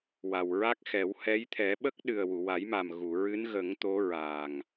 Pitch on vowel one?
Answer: low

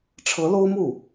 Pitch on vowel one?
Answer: rising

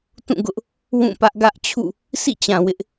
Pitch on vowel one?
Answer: falling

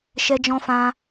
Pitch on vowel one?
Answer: high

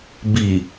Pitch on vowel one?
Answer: low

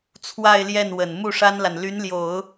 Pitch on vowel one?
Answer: falling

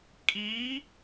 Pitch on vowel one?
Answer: rising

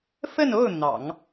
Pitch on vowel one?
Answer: falling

